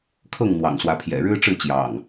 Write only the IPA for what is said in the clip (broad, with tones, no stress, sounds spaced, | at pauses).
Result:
kʰ ɤ˥˨ ŋ n̪ w ɑ̰˨˩ ŋ s w ä˨˦ pʰ j ɛ̰˨˩ ɻ ɻ̩˦ ʈ͡ʂ ɻ̩˥˨ t͡ɕ j ɑ̰˨˩ ŋ